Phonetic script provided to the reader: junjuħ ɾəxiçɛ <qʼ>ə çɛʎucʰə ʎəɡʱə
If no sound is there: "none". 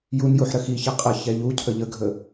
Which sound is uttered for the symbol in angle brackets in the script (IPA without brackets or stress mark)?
qʼ